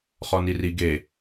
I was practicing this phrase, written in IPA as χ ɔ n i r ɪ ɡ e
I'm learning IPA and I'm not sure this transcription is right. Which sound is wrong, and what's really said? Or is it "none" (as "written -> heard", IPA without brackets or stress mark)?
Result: ɪ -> i